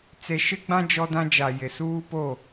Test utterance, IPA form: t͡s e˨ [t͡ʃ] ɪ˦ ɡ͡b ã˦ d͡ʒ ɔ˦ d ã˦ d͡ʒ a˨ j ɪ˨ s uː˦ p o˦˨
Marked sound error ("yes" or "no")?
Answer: yes